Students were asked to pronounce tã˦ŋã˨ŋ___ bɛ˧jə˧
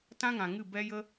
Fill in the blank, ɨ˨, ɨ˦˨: ɨ˦˨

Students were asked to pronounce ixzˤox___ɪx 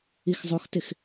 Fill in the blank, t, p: t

